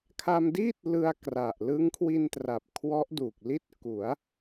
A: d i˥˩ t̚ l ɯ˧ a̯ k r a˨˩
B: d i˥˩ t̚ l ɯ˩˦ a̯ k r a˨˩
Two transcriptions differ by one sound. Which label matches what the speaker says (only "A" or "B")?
A